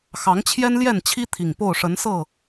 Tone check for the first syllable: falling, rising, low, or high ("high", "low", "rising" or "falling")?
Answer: rising